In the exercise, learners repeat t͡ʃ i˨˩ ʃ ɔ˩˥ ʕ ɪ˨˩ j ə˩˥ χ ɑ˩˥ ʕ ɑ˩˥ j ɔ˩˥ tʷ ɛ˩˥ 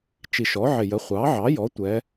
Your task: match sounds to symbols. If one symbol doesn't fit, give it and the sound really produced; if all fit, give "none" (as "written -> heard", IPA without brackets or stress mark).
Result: χ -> χʷ